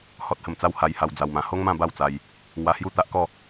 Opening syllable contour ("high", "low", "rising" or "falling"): high